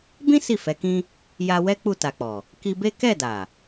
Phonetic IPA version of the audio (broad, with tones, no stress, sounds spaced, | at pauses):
b ĩ˦ s i˦˨ f ɛ˨˦ k ĩ˦ | j a˧ w ɛ˦ k͡p u˦˨ t a˨ k͡p ɔ˨ | k i˧ b e˦ k ɛ˦˨ d a˨